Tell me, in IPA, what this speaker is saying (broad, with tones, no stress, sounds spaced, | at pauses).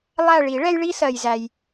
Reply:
lˠ æ˦˨ ɭ i˨˩˦ ɭ ɛ˦ j ɭ i˦ s ɜ˩ j z æ˩ j